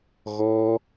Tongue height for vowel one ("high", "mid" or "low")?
mid